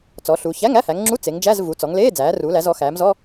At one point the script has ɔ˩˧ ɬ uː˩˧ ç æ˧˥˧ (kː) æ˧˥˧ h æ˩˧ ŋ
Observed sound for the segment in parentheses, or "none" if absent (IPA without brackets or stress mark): ŋ